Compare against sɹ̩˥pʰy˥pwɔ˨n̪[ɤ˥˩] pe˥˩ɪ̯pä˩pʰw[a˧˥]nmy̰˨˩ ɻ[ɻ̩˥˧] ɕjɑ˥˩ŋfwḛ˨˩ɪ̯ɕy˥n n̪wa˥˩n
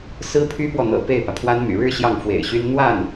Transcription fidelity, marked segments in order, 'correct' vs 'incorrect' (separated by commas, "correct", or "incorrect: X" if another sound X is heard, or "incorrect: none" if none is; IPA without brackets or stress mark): incorrect: ɤ̰˨˩, incorrect: a˥, correct